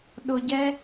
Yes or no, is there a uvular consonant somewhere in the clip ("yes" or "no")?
no